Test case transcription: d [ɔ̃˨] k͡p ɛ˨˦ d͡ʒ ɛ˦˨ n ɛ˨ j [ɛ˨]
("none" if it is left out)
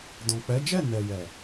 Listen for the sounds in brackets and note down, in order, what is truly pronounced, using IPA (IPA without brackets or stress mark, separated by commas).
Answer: ɔ̃˨, ɛ˨